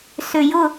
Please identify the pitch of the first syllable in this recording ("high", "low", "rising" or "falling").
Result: low